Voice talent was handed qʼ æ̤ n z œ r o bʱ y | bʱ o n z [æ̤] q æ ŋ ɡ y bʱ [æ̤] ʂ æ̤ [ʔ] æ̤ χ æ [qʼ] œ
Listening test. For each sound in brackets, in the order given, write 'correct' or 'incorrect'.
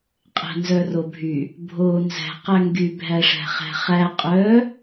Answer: correct, incorrect: æ, incorrect: χ, correct

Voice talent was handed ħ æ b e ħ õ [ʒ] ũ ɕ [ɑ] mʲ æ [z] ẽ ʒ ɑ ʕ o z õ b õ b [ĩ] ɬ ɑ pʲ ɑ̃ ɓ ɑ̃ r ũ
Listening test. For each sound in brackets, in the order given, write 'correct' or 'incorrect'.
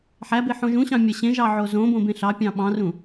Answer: correct, incorrect: ɑ̃, incorrect: ɕ, incorrect: ẽ

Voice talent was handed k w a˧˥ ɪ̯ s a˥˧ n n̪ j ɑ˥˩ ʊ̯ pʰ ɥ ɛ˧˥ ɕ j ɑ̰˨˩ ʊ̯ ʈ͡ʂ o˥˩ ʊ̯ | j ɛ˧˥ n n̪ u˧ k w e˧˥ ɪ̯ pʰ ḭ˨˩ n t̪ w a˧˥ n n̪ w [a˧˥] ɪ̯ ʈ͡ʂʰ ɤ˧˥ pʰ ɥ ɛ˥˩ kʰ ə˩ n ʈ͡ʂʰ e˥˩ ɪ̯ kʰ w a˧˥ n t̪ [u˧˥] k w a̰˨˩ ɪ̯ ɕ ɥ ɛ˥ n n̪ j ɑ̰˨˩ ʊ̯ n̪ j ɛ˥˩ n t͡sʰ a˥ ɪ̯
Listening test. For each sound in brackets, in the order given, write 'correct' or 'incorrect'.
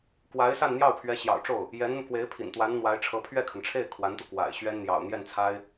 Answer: correct, incorrect: u˧

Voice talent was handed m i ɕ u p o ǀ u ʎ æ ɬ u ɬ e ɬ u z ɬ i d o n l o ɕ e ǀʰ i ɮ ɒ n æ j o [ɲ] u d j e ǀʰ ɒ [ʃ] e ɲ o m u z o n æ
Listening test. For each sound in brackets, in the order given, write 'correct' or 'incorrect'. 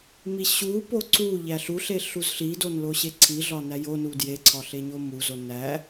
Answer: incorrect: n, incorrect: ɬ

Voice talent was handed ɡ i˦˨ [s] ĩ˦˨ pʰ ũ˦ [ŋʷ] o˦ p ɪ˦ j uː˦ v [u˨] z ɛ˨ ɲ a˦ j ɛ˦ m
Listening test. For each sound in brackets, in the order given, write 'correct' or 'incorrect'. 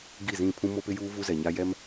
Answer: incorrect: z, incorrect: m, incorrect: u˦

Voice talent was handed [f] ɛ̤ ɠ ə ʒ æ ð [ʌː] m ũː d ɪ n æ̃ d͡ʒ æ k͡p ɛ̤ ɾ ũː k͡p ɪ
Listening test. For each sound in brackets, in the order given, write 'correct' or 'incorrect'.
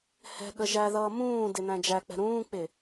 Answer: incorrect: h, correct

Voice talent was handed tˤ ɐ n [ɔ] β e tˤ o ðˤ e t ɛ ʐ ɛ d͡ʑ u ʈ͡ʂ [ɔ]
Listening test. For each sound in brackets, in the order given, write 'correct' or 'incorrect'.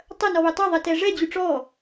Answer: correct, correct

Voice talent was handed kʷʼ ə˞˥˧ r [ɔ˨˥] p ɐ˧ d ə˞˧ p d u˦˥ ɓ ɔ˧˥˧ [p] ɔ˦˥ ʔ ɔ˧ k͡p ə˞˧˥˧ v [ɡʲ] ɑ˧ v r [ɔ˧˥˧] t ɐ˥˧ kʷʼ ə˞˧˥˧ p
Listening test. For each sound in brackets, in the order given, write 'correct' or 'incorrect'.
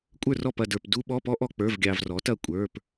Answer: incorrect: ɔ˥˧, correct, correct, incorrect: ɔ˨˥

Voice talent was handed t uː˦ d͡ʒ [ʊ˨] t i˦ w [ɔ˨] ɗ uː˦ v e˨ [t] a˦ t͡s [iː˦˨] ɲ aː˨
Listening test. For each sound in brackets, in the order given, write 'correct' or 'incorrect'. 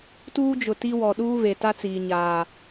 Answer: correct, correct, correct, incorrect: iː˨

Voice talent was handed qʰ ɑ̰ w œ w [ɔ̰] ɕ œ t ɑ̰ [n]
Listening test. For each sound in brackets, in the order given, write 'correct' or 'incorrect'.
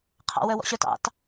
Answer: correct, incorrect: t

